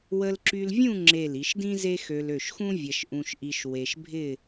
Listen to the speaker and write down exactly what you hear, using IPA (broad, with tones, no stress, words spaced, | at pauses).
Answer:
wə˧lǁy˧lvʲũ˥˧ ŋ͡ǁe˧˩l i˩˧ʃdĩ˥ze˥xø˧l ø˧˩ʃxũ˥ vʲɐ˧ʃ ʔũ˧ʃʔi˧ʃ we˧ʃbʱɪ˥˧